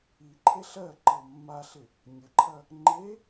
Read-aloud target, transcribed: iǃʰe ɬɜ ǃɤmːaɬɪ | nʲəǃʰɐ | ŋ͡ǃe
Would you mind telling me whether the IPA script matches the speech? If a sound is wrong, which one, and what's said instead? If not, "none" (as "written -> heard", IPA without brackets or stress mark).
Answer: none